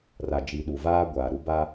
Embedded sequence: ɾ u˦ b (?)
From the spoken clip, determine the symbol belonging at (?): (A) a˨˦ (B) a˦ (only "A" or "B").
B